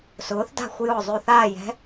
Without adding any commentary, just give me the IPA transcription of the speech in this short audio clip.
sʊː˩˥θda̤˥˨xʷ jʊː˧˩zˤʉ˧˩θaː˥˨jɛ̤˧˥

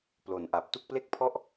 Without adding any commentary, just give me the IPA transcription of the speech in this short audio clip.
plo˨˩nʔa˨˩p̚ tu˥˩k̚ple˥˩k̚ pʰɔ˥˩ʔ

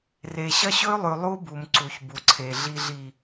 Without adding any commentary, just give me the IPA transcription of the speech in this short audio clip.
re˨ɕɐ˦ɕɵ˦y̯lˠʉ˨ lˠu˦bu˨m ǀu˨çbu˨ǀʰe˨ ɮi˨ɮi˨

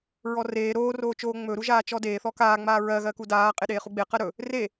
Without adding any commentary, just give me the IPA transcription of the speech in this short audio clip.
ɹɔreː ɾoːroːt͡ʃoː ŋ͡mɵɾuʒaː t͡ʃɔdeːθɔ kaːŋ͡maː ɹɜɣɜ kudaː qʼeɗeːχuɡ͡be qɜɾɵ | re

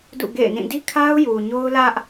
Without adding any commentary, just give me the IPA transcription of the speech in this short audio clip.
dṵ˦˨ɡḛ˦˨ɪ̯nĩ˦˨ di˦kʰa˦ʊ̯ju˨ ɲo˦ʊ̯lä˦ʔ

